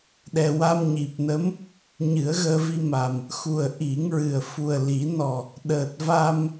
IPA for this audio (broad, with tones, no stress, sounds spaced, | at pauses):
ɗ ɛ˨˩ w a˧ m ɲ i˨˩ p̚ n ə˧˥ m | ɲ ɨ˨˩˦ ə̯ ɣ əː˧ v i˧ m a˨˩ m | x u˨˩ ə̯ ʔ i˨˩˦ ŋ ɹ ɨ˨˩ ə̯ f u˨˩ ə̯ l i˨˩˦ n ɔ˨˩ | ɗ əː˨˩ t̚ v a˧ m